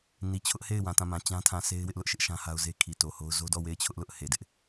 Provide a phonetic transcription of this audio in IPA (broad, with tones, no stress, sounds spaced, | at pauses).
n i˨ t͡ɕʰ ʊ˦ ʔ h e˦˨ ɪ̯ w ã˨ t ã˦˨ m ã˨ t͡ɕ ã˦ tʰ ã˨ sʰ e˦ ɪ̯ w ɪ˦ ʔ l ʊ˦ ʔ ʃ ɪ˦ ʔ ʃ ã˦ h a˦ ʊ̯ z e˦ kʰ i˨ t o˨ h o˦ ʊ̯ z o˦ d ɔ˦˨ w e˦˨ ɪ̯ t͡ɕʰ ʊ˦ ʔ l ʊ˦ ʔ h e˨ d ɪ˦ ʔ